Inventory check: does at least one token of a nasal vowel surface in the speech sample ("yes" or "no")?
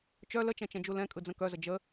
yes